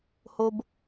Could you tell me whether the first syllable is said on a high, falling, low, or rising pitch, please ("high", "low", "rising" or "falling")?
high